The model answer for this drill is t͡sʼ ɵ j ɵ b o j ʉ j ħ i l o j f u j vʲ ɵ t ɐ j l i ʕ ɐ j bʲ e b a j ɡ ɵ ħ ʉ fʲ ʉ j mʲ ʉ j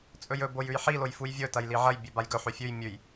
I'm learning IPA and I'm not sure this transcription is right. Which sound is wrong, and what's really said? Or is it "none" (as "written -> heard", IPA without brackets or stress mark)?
none